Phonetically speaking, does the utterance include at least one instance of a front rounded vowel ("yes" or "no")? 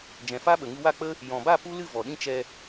no